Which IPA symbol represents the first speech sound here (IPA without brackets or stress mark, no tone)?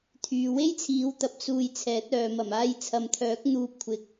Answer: t̪ʰ